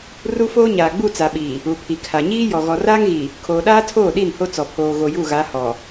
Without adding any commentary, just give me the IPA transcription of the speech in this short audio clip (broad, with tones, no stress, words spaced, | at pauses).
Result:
ru˦foː˦ ɲaː˨ɡ͡bu˦˨t͡sa˨ɓiː˨ | u˨pʰi˨kʰa˨ ɲiː˦jɔ˨ ɣɔ˨raː˦ŋɣi˨ | kʰoː˨ɗaː˦ tʰoː˦˨ɗi˦˨n ho˦t͡sɔ˨pʰoː˨ ɣo˨ju˦˨ɣa˨˦ hɔ˨